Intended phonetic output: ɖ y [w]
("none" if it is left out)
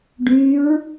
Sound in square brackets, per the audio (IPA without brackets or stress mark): ɹ